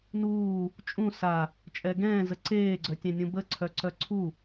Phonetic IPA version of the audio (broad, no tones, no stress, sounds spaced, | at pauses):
n uː | t͡ʃʼ ũ s a | t͡ʃʼ ɛ ɡ ɛ̃ː z ə ǀ eː ɡ͡ǀ œ tʲ ɛ̃ nʲ ũ b ə ǀʰ œ ǀ œ ǀʰ u